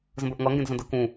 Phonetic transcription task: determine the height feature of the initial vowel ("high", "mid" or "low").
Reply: mid